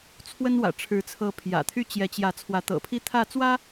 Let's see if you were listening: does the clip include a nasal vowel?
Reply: no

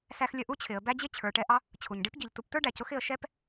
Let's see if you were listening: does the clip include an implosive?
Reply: no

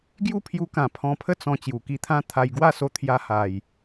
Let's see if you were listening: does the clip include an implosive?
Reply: no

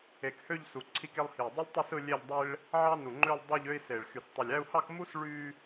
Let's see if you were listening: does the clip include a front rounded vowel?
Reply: yes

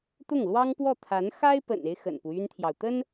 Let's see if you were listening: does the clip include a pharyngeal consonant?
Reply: no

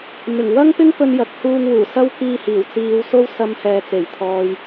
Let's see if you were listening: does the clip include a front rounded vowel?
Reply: no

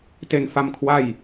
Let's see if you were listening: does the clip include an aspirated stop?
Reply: yes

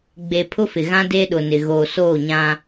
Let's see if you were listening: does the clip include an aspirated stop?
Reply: yes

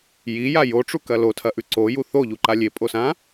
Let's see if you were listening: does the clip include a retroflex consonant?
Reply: yes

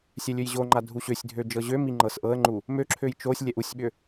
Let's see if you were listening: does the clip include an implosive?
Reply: yes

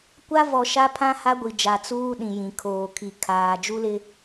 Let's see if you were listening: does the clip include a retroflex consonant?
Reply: no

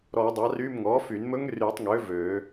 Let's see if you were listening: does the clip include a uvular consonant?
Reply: no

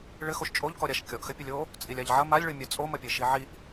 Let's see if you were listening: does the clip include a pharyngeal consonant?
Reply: yes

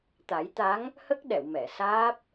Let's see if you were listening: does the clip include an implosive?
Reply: yes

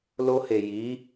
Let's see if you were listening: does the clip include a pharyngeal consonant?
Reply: no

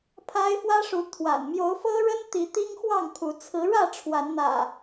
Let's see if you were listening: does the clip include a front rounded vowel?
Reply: no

